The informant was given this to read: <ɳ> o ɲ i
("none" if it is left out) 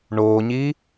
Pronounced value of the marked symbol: ɳ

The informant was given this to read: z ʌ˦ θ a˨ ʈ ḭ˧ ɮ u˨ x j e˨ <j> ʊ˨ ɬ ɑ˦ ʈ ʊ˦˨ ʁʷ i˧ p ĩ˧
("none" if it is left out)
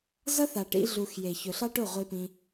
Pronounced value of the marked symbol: ç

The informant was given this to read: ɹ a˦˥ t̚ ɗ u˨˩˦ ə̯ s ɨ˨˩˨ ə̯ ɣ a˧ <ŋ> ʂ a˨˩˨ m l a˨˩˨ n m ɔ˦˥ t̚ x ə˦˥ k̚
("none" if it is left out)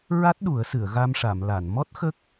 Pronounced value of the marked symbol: m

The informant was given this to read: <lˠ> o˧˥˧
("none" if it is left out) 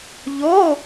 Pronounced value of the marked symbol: ʎ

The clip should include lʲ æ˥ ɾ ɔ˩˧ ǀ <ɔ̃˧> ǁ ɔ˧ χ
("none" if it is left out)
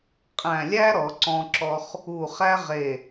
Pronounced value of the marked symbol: ɔ̃˧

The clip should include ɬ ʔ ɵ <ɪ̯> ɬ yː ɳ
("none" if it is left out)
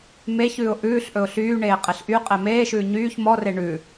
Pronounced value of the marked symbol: ʊ̯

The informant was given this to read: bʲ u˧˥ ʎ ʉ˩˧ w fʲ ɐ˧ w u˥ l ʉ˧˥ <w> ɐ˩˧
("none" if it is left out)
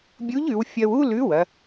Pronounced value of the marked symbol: w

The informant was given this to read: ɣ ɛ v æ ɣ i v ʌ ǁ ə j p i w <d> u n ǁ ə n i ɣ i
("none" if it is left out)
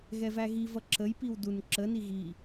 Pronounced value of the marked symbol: d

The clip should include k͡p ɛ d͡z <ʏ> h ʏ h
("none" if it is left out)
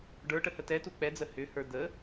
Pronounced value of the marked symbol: ə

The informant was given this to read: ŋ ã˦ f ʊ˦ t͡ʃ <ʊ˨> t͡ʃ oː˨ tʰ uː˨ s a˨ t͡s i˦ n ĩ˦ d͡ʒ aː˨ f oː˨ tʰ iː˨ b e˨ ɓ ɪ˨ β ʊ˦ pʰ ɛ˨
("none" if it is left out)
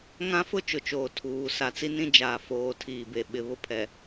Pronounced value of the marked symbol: ʊ˨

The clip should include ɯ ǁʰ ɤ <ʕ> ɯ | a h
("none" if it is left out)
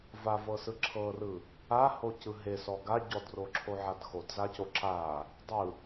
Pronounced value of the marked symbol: r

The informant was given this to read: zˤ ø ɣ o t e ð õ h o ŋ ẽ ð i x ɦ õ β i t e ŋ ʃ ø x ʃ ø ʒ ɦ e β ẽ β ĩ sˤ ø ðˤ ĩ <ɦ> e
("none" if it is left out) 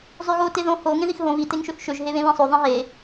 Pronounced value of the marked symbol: ɦ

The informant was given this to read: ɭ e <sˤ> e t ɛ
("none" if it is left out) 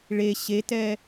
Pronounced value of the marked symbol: ɕ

